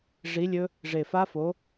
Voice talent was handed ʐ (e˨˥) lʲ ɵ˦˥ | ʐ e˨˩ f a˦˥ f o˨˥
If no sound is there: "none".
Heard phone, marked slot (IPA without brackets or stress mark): i˨˥